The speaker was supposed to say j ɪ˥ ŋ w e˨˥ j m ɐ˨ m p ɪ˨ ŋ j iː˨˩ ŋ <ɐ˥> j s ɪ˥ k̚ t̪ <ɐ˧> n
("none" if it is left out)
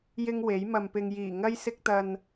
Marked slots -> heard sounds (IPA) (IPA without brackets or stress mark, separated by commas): ɐ˥, ɐ˧